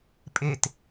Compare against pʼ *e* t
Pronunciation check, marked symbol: correct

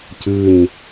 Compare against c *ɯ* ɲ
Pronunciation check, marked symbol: correct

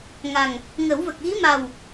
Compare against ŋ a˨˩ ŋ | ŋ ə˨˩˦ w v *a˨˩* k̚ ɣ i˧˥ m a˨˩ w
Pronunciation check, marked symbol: incorrect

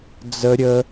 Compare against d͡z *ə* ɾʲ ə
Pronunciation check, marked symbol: correct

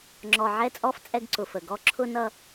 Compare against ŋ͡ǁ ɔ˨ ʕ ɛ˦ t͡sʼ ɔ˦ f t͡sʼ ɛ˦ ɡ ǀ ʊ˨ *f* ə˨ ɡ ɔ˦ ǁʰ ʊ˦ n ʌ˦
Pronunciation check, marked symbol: correct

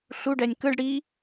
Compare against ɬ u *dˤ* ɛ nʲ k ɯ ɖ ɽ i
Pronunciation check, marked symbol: incorrect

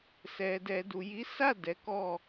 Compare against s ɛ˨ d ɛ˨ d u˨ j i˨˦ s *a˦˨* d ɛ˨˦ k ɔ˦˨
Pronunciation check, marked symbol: correct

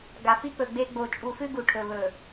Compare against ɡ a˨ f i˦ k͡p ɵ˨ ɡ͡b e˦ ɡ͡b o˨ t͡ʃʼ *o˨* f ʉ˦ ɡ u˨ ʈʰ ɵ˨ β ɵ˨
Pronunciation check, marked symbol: incorrect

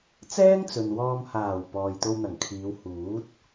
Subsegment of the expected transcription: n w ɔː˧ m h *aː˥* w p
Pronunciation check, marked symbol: incorrect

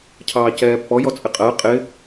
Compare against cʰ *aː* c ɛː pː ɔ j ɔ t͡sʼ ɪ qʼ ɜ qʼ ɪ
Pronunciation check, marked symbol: incorrect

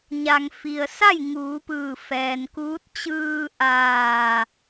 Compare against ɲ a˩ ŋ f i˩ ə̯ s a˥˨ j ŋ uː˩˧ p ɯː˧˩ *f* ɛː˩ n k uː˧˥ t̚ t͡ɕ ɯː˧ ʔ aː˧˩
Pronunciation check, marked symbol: correct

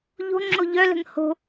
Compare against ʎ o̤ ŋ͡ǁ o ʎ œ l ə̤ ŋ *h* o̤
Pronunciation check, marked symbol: correct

